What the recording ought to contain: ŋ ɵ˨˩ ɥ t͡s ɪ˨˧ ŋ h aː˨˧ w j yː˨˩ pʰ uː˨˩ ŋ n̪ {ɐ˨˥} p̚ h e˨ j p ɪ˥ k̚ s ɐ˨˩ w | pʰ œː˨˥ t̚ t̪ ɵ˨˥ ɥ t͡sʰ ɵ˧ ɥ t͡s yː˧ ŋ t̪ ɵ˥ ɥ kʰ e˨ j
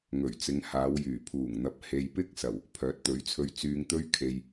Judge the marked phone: correct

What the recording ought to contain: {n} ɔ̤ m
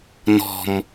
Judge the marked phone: correct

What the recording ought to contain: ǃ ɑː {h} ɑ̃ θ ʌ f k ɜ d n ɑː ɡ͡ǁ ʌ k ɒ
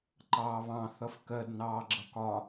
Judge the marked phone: incorrect: β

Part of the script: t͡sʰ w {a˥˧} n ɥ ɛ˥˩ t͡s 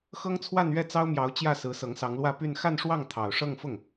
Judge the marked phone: correct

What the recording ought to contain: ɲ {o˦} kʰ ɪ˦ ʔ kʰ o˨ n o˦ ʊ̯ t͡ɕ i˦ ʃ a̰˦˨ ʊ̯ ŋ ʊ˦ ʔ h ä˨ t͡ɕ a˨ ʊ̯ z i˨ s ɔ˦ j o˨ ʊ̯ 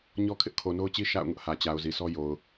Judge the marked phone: incorrect: ɔ˦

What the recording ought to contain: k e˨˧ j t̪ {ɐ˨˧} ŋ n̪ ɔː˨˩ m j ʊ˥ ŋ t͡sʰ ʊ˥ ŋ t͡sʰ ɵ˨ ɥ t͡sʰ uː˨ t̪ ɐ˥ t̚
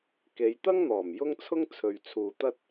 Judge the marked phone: incorrect: ɐ˥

